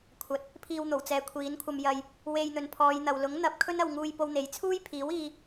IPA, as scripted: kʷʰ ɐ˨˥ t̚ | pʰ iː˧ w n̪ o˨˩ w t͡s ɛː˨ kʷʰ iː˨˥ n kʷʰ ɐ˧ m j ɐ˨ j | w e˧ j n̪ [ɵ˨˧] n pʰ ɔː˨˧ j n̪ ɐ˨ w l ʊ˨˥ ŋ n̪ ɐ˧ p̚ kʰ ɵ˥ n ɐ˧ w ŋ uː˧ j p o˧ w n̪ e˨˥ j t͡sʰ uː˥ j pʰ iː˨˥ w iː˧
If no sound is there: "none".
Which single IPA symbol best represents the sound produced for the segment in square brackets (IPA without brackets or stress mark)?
ɵ˨˧